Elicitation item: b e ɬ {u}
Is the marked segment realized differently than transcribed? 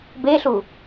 no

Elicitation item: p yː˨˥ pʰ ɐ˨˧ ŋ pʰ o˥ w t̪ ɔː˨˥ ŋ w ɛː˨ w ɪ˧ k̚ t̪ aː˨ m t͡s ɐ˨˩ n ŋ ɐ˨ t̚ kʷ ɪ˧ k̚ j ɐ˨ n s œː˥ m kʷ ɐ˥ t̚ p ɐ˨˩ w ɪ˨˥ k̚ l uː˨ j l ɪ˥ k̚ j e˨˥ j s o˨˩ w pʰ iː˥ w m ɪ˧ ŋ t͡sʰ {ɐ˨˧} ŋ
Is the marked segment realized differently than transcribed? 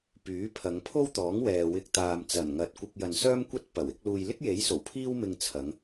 no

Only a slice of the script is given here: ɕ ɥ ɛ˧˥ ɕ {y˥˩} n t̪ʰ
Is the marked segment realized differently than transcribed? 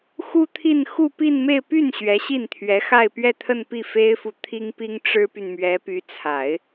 yes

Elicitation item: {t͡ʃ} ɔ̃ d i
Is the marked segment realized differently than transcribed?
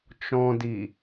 no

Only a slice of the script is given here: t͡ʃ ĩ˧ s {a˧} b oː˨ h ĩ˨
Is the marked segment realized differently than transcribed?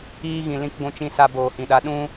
no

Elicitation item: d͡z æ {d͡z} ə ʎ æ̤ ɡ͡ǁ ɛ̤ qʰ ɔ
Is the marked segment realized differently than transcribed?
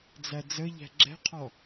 no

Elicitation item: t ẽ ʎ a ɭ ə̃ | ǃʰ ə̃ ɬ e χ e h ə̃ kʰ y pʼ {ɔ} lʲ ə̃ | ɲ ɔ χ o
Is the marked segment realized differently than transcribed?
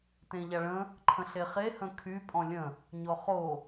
yes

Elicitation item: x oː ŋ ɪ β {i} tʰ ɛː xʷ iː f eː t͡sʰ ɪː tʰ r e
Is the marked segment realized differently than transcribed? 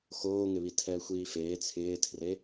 no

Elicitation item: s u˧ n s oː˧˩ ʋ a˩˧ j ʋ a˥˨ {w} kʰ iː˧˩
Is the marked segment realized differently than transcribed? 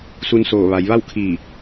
no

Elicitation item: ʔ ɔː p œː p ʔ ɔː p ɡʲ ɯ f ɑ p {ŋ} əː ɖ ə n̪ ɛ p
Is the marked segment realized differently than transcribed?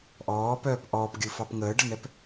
no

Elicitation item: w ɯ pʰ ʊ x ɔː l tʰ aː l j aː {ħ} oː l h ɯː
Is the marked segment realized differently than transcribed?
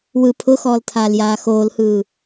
yes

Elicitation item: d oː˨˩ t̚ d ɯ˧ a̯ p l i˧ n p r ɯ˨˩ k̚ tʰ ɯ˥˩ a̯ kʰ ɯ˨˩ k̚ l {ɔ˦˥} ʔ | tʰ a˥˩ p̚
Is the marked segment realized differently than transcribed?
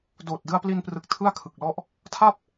yes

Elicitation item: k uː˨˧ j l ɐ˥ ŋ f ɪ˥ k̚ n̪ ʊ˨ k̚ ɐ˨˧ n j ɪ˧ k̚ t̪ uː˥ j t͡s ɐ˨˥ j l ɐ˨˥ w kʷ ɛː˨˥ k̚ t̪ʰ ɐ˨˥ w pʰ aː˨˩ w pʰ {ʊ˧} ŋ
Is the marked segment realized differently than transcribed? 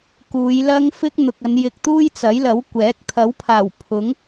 yes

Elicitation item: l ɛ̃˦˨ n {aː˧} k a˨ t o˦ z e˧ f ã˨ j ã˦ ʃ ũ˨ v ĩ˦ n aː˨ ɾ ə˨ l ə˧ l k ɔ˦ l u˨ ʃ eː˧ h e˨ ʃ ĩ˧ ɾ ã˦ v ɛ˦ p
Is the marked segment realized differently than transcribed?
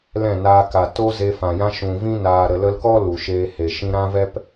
no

